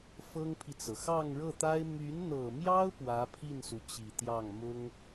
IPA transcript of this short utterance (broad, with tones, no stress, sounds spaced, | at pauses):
f ɤ˥ ŋ pʰ i˨ t͡s ɤ˩ x ɑ˥˧ ŋ ɻ ɤ˥˩ t̪ a˥ ɪ̯ m y˧˥ n n̪ ɤ˨˩ m j ɑ˥ ʊ̯ p w ä˧˥ pʰ i˥˩ n s u˩ t͡ɕ i˨˩ t̪ j ɑ˥˩ ŋ m ʊ˥ ŋ